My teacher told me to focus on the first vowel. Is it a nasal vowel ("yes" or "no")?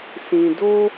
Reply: yes